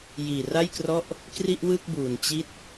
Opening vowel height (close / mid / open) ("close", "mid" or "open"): close